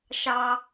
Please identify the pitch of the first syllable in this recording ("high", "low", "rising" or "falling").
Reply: low